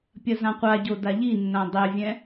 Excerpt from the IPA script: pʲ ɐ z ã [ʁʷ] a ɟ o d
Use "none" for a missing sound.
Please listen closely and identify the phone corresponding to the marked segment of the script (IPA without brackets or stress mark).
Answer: qʷ